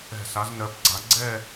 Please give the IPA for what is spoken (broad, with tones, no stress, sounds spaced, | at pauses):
ɛ̤˧˩ s a˨˦ z n ɜ˨˦ p ɡ͡ǀ a˨˦ ɡ͡ǀ ɛ˥˧